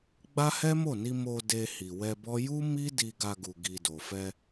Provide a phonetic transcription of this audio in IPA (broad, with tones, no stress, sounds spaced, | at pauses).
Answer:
ɡ͡b a˦ h ɛ˦ m o˦˨ n i˧ m o˧ d e˧ h i˨ w ɛ˧ b ɔ˦ j u˦ m i˦ d i˧ ɡ a˧ ɡ u˨ ɡ i˨ d o˨ f ɛ˧